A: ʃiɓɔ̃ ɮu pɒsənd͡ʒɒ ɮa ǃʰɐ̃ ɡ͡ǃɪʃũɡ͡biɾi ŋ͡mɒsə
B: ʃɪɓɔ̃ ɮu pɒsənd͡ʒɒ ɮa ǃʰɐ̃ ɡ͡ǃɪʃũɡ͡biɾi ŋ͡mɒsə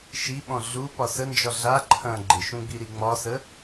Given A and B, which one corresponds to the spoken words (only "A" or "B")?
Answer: A